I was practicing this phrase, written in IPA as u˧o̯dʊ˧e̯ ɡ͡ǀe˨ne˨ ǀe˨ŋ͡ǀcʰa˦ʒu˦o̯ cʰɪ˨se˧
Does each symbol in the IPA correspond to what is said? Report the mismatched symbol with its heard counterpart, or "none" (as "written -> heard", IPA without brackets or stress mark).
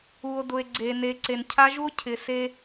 ŋ͡ǀ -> n